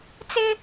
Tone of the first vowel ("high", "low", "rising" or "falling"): high